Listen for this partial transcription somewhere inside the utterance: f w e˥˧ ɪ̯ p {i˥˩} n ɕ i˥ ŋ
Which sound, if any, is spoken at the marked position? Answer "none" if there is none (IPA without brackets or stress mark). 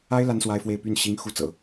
y˥˩